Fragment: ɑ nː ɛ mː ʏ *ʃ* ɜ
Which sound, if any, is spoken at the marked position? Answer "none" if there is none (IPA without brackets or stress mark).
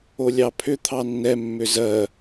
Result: z